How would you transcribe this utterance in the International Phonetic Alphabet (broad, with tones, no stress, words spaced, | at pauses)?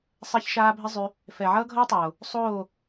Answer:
sˤɛ˦çʃaː˦ bʱɘ˦zˤy˧ | fɛ˨ʕʌː˦ɡʱʌː˦tˤoː˨ | sˤoː˦˨